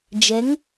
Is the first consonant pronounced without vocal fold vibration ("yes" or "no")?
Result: no